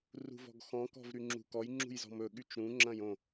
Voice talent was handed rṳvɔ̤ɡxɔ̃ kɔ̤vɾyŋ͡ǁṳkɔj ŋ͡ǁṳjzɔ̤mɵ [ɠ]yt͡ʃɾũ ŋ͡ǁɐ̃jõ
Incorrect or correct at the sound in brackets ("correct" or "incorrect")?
correct